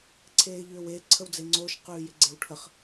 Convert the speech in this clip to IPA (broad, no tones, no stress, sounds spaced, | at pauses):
ǀʰ eː ʎ ʏː w e ǀʰ ə w d͡z e ŋ͡ǀ oː ʃ q ʉː j ɪ ɡ͡ǀ e w ʈʰ ə χ